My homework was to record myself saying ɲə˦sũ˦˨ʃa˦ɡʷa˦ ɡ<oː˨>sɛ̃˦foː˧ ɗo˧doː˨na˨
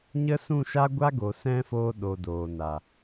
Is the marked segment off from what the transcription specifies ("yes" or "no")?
yes